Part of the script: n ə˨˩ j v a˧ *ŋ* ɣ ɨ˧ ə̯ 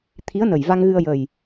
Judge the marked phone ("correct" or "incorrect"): correct